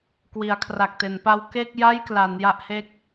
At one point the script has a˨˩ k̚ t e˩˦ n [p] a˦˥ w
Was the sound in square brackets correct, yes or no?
yes